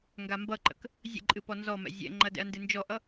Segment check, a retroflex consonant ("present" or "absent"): absent